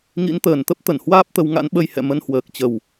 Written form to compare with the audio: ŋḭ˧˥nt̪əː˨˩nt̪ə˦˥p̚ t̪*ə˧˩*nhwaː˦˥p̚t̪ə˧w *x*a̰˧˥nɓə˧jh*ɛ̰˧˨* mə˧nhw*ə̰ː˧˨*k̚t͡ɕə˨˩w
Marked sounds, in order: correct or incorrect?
correct, incorrect, correct, incorrect

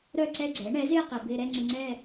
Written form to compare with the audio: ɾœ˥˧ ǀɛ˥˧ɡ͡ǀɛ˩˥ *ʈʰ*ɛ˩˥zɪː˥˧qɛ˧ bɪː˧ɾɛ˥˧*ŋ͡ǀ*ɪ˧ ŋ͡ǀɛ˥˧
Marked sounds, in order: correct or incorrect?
incorrect, correct

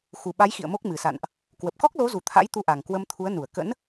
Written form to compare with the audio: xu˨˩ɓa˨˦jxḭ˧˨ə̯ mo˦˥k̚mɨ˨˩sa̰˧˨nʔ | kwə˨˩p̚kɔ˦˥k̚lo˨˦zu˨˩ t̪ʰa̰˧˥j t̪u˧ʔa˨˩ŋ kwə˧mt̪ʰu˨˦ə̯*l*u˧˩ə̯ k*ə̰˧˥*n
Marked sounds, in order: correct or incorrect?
incorrect, correct

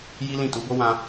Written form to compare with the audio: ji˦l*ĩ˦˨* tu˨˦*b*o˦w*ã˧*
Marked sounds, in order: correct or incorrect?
correct, correct, correct

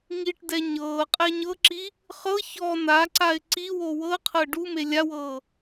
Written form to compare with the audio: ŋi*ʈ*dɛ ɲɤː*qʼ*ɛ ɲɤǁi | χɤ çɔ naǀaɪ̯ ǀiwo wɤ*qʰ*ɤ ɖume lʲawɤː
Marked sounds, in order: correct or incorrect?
correct, correct, correct

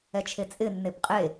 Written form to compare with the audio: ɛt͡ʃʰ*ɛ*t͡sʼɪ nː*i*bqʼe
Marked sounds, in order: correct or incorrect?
incorrect, incorrect

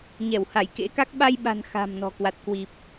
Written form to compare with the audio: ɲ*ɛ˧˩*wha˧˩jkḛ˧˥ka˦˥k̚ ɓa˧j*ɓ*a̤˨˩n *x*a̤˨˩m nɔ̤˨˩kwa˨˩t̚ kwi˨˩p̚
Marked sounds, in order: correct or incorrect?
correct, correct, correct

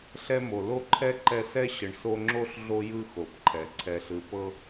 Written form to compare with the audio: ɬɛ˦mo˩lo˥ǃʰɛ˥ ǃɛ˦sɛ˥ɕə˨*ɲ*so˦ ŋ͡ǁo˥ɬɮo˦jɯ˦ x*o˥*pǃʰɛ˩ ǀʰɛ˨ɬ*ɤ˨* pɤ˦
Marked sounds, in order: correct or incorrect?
incorrect, incorrect, incorrect

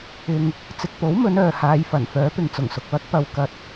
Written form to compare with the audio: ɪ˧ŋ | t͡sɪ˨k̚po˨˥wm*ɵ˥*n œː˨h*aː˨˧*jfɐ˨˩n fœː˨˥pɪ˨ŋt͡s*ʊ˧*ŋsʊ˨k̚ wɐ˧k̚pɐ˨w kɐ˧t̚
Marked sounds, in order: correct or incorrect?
incorrect, correct, incorrect

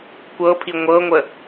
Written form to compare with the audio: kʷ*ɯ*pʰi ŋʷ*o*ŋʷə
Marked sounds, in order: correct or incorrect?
incorrect, incorrect

